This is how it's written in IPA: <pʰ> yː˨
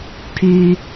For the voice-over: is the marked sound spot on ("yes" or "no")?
yes